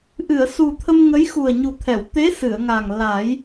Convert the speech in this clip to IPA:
ʔ ɨ˨˩˨ ə̯ s u˨˩ t̪ʰ ə˧ m ŋ ə˧˥ j x u˨˩ ə̯ ɲ u˨˩ t̪ʰ ɛ˨˩˨ w t̪ e˧˥ s ɨ˨˩˨ ə̯ ŋ a˨˩ ŋ l a˨˩˦ j

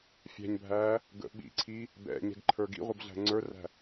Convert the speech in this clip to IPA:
fʲ æ̤ ɲ bʱ æː | ɡ ə̰ ɓ ḭ ǀʰ iː | b ɛ̰ ɲ ɛ̤ ɡ ǃʰ ə˞ ɡ ḭ ʁʷ ɪ b ɮ æ̤ ŋ͡ǀ ə˞ r æ̤

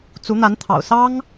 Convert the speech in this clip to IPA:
t͡s u˧˥ n̪ a˧˥ n t̪ʰ ɑ̰˨˩ ʊ̯ s ɑ˥ ŋ

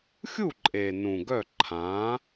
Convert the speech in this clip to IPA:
xʲ u˥˩ ǃʼ e˩ n ũ˩ ɡ œ˧˩ ǃʰ ã˩˧

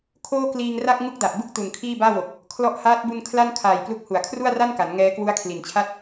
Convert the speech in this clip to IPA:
kʰ oː˥˩ k l iː˧ ŋ r a˥˩ k̚ ŋ u˥˩ k̚ d a˨˩ ʔ b ɯ˥˩ k̚ t u˨˩ n kʰ iː˥˩ b aː˥˩ w o˨˩ k̚ | kʰ l ɔ˦˥ ʔ h aː˦˥ t̚ b u˧ n kʰ l a˥˩ n kʰ aː˨˩ j p l u˦˥ k̚ h u˨˩ a̯ kʰ r u˥˩ a̯ r a˥˩ n k a˩˦ n ŋ ɛː˦˥ k w u˦˥ a̯ kʰ l i˩˦ n t͡ɕʰ a˦˥ t̚

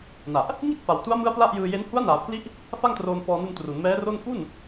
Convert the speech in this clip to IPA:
n a˨˩ ʔ | ŋ i˥˩ t̚ f a˩˦ w t u˦˥ a̯ m ɯ˦˥ a̯ p l a˥˩ ʔ j ɯː˧ j e˦˥ n h u˦˥ a̯ n aː˩˦ pʰ l i˦˥ ʔ | f a˥˩ ŋ t r oː˧ n f ɔː˧ n u˧ n t r u˩˦ n m ɛː˦˥ r o˥˩ n f u˥˩ n

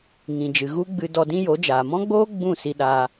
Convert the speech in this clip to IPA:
ŋ ĩ˨ d͡ʒ ɨ˨ ɣ u˦ ɡ͡b ɨ˧ d ɔ˧ d ĩ˦ j o˨˦ d͡ʒ aː˨ m ɔ̃˦ ɡ͡b oː˦ ɡ͡b ũ˦˨ s i˧ ɗ aː˧

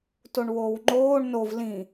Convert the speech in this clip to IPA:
t o ɳ w o w ŋ͡ǃ oː ɳ n o v l ĩ

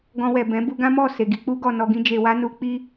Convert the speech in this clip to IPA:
ɡ ɔ̃˧ w ɛ˨ b ɛ̃˨˦ b u˧ ɡ ã˦ m ɔ˦˨ s e˨ ɡ i˧ k͡p u˦ ɡ ɔ˦˨ n ɔ˧ ɡ ĩ˦ d͡ʒ e˧ w a˦ n u˧ k͡p i˦

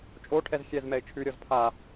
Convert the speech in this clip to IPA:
t͡ʃʼ o ʈʰ ɛ z xʲ ɛ z m ɛ ɪ̯ t͡ʃʰ ʉ ɾʲ ɔ z pʰ a

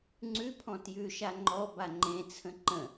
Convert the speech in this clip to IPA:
ŋ͡ǀ ʉ pʰ ɔ̃ t j ʉ ʃ a ŋ͡ǃ ɔ b a ŋ͡ǃ ẽ t͡sʰ ə̃ ǃ ə̃

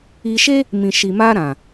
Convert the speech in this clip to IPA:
i˧ ʃ e˦ | m ĩ˨ ʃ i˨ m a˧ ɾ ã˨

